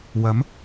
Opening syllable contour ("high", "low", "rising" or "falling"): rising